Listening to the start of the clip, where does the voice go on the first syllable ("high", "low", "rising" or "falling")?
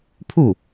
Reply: falling